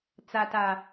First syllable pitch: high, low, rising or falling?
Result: low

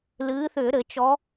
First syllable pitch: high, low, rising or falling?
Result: rising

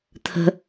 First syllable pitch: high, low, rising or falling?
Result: high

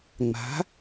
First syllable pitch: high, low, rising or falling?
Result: rising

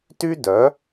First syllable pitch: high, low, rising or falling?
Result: high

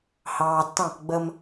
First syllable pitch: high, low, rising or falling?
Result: low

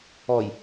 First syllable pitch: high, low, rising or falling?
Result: low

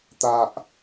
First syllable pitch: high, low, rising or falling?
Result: high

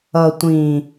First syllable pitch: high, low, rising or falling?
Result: low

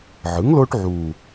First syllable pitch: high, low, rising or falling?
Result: rising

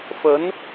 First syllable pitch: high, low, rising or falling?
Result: rising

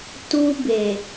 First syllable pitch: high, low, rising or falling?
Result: high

